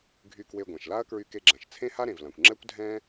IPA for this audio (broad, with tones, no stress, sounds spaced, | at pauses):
ɡʱ y˧ k w e˧ ɡʷ ã˩ ʃ l a˥ ɐ̯ k ɹ y˧ k e˧ ɡ͡ǁ ã˩ ʃ t͡sʰ ẽ˥ h a˥ ɾ ẽ˩ v l ã˩ kʷ ŋ͡ǁ ɛ˥ kʷ dʱ ɛ̃˥